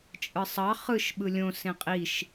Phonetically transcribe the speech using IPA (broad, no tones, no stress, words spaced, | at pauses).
t͡ʃʼɯsˤɑ χɯʃ ɓɯlʲõ sẽqʼiʃ